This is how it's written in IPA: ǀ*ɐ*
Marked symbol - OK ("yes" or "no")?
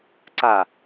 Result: no